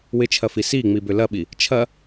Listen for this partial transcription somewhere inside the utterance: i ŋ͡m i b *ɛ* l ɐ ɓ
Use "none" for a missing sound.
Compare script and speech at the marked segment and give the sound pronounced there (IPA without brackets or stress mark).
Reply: ʏ